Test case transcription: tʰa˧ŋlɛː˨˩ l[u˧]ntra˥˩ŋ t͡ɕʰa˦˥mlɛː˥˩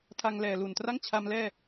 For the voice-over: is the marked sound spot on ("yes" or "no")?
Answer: no